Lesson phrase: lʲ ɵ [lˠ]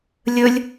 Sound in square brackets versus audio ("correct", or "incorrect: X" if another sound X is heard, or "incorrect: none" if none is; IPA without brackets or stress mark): incorrect: lʲ